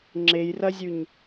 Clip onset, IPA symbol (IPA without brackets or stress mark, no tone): ŋ͡ǁ